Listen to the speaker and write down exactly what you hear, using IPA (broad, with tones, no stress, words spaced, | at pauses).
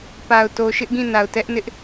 pa˨ʊ̯to˨ʃɪ˦ʔ ɡĩ˦˨na˨ʊ̯ tɛ˦ʔnɪ˦ʔ